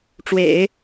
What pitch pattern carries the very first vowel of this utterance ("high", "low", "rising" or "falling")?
low